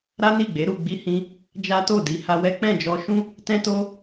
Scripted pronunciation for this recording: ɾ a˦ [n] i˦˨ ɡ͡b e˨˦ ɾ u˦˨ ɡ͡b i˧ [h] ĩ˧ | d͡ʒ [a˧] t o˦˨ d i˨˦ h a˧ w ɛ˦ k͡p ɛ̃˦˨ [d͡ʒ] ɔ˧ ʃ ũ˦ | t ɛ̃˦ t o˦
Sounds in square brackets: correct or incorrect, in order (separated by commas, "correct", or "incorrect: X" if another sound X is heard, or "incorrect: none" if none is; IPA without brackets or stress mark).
correct, correct, incorrect: a˦, correct